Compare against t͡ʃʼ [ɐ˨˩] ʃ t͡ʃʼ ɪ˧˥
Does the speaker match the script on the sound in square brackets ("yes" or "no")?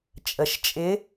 no